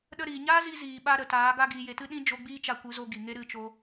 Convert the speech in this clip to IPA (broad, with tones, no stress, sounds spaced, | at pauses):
ɗ ə˦ ɾ iː˨ ɲ aː˦ z i˧ z iː˨ ɓ a˧ ɾ ə˨ t aː˨˦ ɡ a˧ ɡ iː˨ j e˨ t ɨ˧ ɗ ĩ˧ d͡ʒ o˧ ɡ͡b iː˦ t͡ʃ a˧ kʷ ɨ˨˦ z o˧ ɡ i˨ ŋ e˦ ɾ ɨ˦˨ t͡ʃ o˧